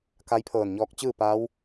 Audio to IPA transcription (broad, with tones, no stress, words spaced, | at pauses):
ka˧˥jpʰɤː˧˩nɲɔː˧k̚ t͡ɕɯː˥˨paː˧˥w